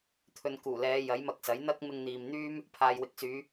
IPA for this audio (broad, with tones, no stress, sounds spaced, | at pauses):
t̪ʰ ɵ˨ n k uː˨˩ l ɛː˨˧ j ɐ˨˥ j m ɐ˧ k̚ s ɐ˨˥ j n̪ ɐ˥ k̚ m ɪ˧ ŋ n̪ iː˨ m n̪ yː˥ m | pʰ aː˨ j w ɪ˨˥ k̚ s yː˨˧